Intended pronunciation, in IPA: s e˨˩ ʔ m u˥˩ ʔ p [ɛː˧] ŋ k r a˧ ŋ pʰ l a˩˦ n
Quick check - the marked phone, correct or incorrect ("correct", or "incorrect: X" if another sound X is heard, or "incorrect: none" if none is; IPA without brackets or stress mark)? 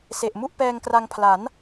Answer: correct